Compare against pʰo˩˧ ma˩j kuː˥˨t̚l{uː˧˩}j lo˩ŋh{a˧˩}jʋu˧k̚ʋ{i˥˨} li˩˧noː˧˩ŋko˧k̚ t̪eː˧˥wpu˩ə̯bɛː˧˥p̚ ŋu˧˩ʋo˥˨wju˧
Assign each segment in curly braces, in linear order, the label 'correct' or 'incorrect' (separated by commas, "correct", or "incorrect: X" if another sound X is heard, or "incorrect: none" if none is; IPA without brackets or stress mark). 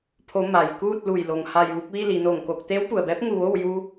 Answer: incorrect: u˧˩, correct, correct